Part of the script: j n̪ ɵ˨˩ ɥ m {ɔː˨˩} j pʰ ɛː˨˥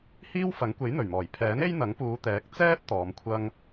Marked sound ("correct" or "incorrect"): correct